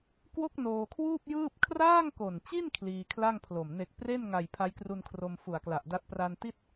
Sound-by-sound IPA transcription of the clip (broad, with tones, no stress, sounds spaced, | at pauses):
k w o˦˥ k̚ n oː˧ kʰ w uː˥˩ p̚ j ɯː˥˩ p̚ kʰ r aː˥˩ ŋ k o˨˩ n t͡ɕ i˥˩ n kʰ l iː˧ kʰ l a˥˩ ŋ pʰ l o˨˩ m n e˨˩ k̚ p r e˥˩ n ŋ a˨˩ j pʰ a˦˥ j k r u˧ n kʰ r o˧ m f u˨˩ a̯ k l a˨˩ ʔ d a˦˥ t̚ p r a˧ n t i˥˩ t̚